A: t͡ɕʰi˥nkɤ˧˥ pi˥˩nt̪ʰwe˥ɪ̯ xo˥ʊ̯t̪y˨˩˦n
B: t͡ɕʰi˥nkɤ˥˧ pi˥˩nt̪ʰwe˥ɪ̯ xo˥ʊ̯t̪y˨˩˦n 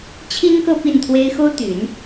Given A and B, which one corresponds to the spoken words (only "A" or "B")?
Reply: B